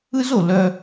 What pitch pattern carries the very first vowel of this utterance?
high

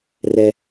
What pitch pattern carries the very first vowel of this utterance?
low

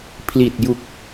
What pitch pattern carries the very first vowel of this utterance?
low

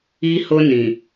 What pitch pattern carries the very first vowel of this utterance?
high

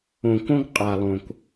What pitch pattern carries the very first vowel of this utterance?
low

